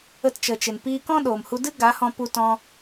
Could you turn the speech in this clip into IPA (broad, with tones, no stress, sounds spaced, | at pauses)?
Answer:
ə˧ t t͡ʃ ə˨ t͡ʃ e˨ n p iː˧ k ɔ̃˦ ɗ o˨ m h u˧ d ɨ˦ ɡ a˨˦ h ɔ̃˧ p u˧ t ɔ̃˧